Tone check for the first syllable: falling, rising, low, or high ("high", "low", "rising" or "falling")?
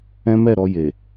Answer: high